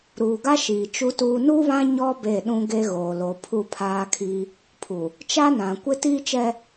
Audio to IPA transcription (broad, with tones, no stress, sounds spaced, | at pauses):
ɾ uː˨ ɡ a˦ ʃ iː˨ t͡ʃ u˦ t uː˦ n u˦ β ã˦ ɲ ɔ˦ b e˦˨ ɗ ũ˦ ɡ e˦ ɣ oː˨ l o˨ pʰ u˦˨ pʰ aː˦ kʰ i˦ | pʰ u˨ | t͡ʃ a˦ n ã˨ kʷ ɪ˦ t iː˦ t͡ʃ ɛ˦